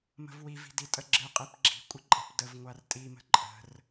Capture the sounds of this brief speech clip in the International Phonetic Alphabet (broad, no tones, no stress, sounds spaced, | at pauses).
m ə̤ v w i v i̤ d i tʼ ə ɡ͡ǁ ɨ qʼ i p ɡ͡ǁ i̤ kʷʼ ə ǃʼ ə̤ p d ə v ŋʷ a r tʼ i m ə̤ ǃʼ ə̤ r